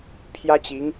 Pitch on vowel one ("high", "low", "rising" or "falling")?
high